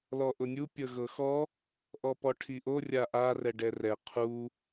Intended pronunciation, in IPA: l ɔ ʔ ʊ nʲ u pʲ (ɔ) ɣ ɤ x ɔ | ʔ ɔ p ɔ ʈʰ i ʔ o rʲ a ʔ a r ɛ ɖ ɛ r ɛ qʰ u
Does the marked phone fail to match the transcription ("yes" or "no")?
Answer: yes